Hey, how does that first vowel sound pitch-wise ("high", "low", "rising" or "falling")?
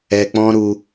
low